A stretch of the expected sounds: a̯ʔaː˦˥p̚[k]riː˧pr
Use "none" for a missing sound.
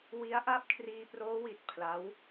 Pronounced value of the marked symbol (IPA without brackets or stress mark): kʰ